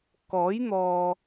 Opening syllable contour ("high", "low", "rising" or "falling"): rising